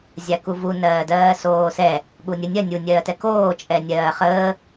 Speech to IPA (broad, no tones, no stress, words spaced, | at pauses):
zʲakuvu nɜːdɜːsoːsɛ | ɠunʲə nʲɜ nʲu nʲɜːtɛkoː t͡ʃʼɛnʲɜːχəː